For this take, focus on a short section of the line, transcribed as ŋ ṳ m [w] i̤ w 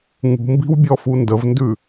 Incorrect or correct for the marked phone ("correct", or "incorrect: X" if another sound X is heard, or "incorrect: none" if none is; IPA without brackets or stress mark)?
incorrect: b